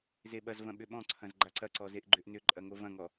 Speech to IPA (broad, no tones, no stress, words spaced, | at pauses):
zeɓɐzvɐ̃ ɓʏɓɔ̃ǀʰɐ̃z ɡ͡ǃaǀɐǀɔ zeʔɡ͡ǃʏʔnʏǃʼɐ ŋovɐ̃ŋɔ